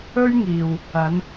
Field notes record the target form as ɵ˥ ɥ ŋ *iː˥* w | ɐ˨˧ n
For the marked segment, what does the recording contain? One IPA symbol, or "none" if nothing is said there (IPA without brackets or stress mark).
iː˨